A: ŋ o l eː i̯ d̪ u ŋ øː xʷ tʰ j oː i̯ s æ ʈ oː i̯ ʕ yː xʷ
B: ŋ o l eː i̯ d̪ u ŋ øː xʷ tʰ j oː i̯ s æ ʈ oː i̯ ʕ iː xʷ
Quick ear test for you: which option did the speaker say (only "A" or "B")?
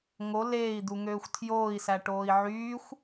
A